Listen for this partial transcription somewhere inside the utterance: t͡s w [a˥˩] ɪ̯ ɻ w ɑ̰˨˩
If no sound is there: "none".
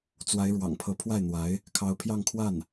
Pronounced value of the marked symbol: a˧˥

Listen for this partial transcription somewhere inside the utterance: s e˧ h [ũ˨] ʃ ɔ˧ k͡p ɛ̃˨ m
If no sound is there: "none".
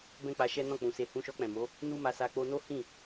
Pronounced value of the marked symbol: ũ˧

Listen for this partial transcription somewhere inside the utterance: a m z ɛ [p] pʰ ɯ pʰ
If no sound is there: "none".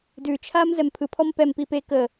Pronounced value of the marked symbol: m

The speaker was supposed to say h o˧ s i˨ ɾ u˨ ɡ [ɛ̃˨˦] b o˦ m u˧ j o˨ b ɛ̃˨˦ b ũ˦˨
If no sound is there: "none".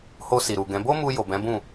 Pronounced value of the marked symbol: ɛ̃˨˦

